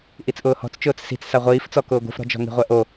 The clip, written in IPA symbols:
ʔ i t͡s ʔ ʊː h ɔ̤ t͡s t͡ʃ ʊː t͡s s i̤ t͡s s a ʁʷ iː f t͡s ɔ k ʊː ɡʷ i̤ f ɾ ɔ̤ d͡ʒ ɔ̤ ŋ i̤ ʁʷ ɛ ʔ o

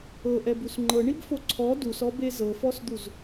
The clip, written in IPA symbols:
ɤ ʔ ɛ b u s ŋ͡ǃ ɤ ɳ i b f o ǀʰ ɔ d u s ɔ b e z ɤ f ɔ s d̪ u z

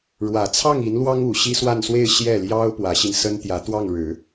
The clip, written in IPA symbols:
ɻ w ä˨˩ t͡sʰ ɑ˥˩ ŋ i˧˥ n l w ɑ˥ ŋ u˨˩ ɕ i˥ s w a˥˧ n s w e˥˧ ɪ̯ ɕ j ɛ˥˩ l j ɑ˥ ʊ̯ p w ä˧˥ ɕ i˧ n s ə˥ n t̪ j ä˧˥ t̪ w ɑ˥˩ ŋ ɻ ɻ̩˨˩˦

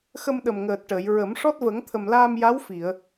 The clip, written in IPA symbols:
x ə˧ m ɗ ə˨˩ m ŋ əː˨˩ t̚ ʈ əː˨˩˨ j ɹ ə˨˩˦ m ʂ ɔ˦˥ t̚ v ə˨˩˦ ŋ t̪ʰ ə˨˩ m l aː˧ m j a˧˥ w f i˨˩˨ ə̯

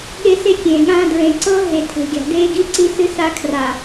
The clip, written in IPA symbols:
ɠ e˦ s e˦ kʲ ẽː˨ ɠ ãː˦ d ɹ ẽ˨ ǀ ɤ˦ ɦ e˨ tʰ e̤˨ ɡʲ a̤˨ d eː˦ ɡ i˦ ǀ i˦ s ɨ˦ s a˦ kʰ r a˨

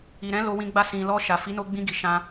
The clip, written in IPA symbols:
i˨ ɾ ɛ̃˨˦ l o˧ w ĩ˧ ɡ͡b a˧ s ĩ˨ l ɔ˧ ʃ a˨ f i˨˦ n o˧ ɡ͡b ĩ˧ ɡ i˨ ʃ ã˧

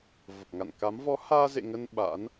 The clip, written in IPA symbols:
v ə˨˩ p̚ ŋ a̰˧˨ n k a˨˦ m v ɔ˨˦ h aː˧ z ḛ˧˨ ŋ ə˧ n ɓ a̰˧˥ n

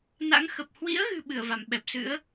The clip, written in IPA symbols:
n a̰˧˥ ŋ x ə˨˩ p̚ h w ḭ˧˥ ə̯ ɣ ɨ̤˨˩ ɓ ɨ˧˩ ə̯ v a˧˩ m ɓ ɛ˨˩ p̚ s ɨ̰˧˥ ə̯

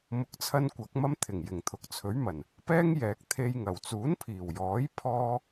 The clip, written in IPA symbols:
m ʊ˧ k̚ t͡sʰ ɐ˥ n kʷ ɐ˨˥ k̚ m ɐ˥ m t̪ʰ ɪ˨˩ ŋ j ɪ˨˩ ŋ t̪ʰ ʊ˨ k̚ t͡sʰ ɵ˨˥ ɥ m ɐ˨˩ n | p ɛː˥ ŋ j ɛː˨ k̚ t̪ʰ e˧ j ŋ ɐ˨˩ w t͡s uː˨˥ n pʰ iː˨˩ w j ɔː˨˥ j pʰ ɔː˥

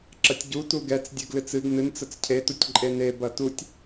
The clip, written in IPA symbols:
ǁ ɐ tʲ ɟ u t u ɡ ɛ t͡s dʲ ɨ ɡ l ɨ t͡s ɨ ɡ n ɨ n t͡s ə t͡s cʰ e t u tʲ ǃʼ e n e b ɐ t u tʲ

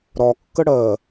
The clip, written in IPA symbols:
ɾ ɒ kː ə ɽ ɜ

